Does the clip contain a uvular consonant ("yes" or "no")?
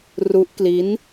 no